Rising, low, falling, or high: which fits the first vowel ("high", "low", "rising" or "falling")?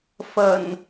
low